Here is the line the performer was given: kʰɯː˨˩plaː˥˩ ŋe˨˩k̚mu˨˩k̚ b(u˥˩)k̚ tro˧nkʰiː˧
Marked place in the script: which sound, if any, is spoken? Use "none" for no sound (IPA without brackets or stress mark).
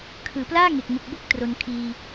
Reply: o˥˩